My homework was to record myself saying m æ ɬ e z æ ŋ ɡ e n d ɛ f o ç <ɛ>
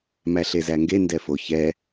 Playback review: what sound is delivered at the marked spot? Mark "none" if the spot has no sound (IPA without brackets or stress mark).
ɛ